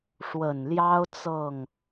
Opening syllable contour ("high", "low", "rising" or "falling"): low